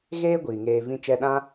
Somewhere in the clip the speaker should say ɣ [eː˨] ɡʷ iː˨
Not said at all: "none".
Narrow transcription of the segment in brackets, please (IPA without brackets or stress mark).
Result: eː˦